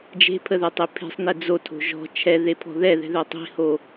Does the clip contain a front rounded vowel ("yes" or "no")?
yes